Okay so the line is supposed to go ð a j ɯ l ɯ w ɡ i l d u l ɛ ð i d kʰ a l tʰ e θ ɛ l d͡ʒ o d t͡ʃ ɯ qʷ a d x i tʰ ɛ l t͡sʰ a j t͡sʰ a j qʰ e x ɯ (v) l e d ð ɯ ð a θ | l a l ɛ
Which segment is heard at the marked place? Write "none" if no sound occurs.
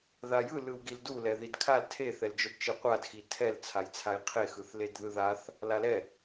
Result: θ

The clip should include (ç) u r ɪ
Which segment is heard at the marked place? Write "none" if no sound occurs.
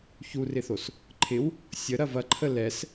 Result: ç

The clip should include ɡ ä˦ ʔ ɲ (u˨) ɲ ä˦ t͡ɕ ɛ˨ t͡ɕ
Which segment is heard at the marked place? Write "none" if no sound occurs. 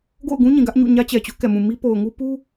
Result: ṵ˦˨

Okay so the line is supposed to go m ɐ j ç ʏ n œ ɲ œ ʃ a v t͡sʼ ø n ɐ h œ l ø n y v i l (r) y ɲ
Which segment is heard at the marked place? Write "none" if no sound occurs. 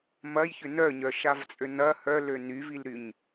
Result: ɾ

